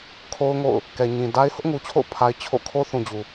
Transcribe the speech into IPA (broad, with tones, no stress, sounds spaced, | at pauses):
kʰ o˦ ʊ̯ ŋ o̰˦˨ ʊ̯ | k ɛ˨ ɲ ĩ˨ d a˦ ɪ̯ h ʊ˦ ʔ ŋ u˨ t͡ɕʰ o̰˦˨ ʊ̯ pʰ a˦ ɪ̯ t͡ɕʰ o̰˦˨ kʰ o˦ θ ũ˨ d͡ʑ u˨